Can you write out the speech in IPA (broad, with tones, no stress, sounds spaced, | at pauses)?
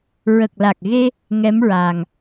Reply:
ɹ ə˨˩ k̚ l a˨˩ k̚ ɣ e˧ | ŋ ɛ˧˥ m ɹ aː˨˩ ŋ